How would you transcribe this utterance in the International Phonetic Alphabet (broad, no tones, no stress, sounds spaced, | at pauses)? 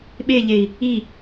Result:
ɓ e ʎ e i̯ | i